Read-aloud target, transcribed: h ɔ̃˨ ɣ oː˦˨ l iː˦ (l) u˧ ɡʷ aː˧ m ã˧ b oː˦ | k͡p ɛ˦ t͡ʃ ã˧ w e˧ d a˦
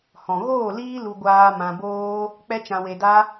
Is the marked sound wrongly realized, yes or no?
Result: no